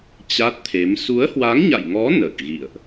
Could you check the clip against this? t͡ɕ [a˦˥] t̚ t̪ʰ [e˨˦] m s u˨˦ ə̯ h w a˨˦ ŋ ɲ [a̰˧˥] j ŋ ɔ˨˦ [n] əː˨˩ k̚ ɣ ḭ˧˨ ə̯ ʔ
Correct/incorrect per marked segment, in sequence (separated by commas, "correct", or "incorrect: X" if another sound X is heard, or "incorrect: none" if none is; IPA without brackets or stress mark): correct, correct, incorrect: a̰˧˨, correct